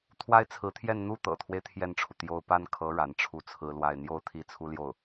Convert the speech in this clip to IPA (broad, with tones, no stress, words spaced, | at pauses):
t̪ʰwa˥ɪ̯t͡sʰɹ̩˧˥t̪ʰjɛ˥˧n n̪u˥˩ t̪ɤ̰˨˩t̪ʰwe˦ɪ̯ t̪ʰjɛ˥˩nʈ͡ʂʰu˩ t̪jo˥˧ʊ̯ pa˥˩nkʰɤ˧˥ ɻa˧˥nʈ͡ʂʰu˥˩t͡sʰɹ̩˥ lwa˥˧ɪ̯ n̪jo˥˧ʊ̯ t̪ʰi˥˩t͡sʰu˥ljo˥˩ʊ̯